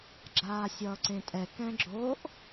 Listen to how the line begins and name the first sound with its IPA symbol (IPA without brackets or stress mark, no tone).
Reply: ɡ͡ǁ